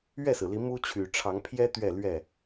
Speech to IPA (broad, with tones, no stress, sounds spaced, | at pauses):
ɥ ɛ˥˨ s ɹ̩˩ l i˨˦ m u˦ t͡ɕʰ y˨˩ ʈ͡ʂʰ ɑ˨˦ ŋ pʰ j ɛ˦ t̪ ɥ ɛ˥˨ l ɥ ɛ˥˨